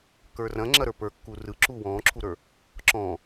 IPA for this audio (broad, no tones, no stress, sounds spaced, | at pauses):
k ə˞ r ɐ̃ ŋ͡ǁ ɐ ɾ ə˞ p ə˞ kː u r ɯ ǁ uː w ɔ̃ː ǁʰ u ɾ ə˞ | ǁ ɔ̃